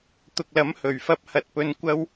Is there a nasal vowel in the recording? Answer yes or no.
no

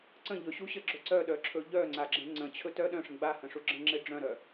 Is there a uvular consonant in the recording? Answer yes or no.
no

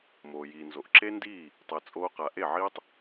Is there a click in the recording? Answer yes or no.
yes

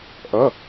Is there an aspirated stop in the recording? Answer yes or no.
no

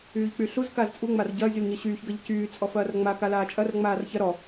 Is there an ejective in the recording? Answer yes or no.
yes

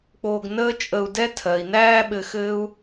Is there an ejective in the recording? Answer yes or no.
yes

